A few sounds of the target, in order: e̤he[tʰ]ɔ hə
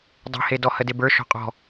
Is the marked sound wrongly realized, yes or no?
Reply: yes